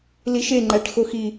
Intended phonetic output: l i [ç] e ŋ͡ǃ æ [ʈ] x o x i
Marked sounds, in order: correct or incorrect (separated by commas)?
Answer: incorrect, correct